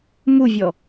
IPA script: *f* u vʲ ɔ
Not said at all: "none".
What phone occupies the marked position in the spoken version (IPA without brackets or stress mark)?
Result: m